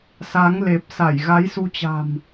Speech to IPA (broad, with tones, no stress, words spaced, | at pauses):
sa˨˦ŋ le˨˩p̚ sa˧˩jɣa˨˦jsu˧t͡ɕa̤˨˩m